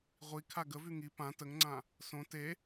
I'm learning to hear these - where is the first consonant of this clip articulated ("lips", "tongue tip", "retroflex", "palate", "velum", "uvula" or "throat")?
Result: uvula